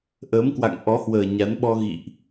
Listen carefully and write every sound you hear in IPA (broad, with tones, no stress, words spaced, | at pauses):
ʔəː˨˦mkwa̰˧˨ŋ ʔɔ˨˦hwəː˨˩ ɲa˨˦nɓɔ˧ ɣḭ˧˨ʔ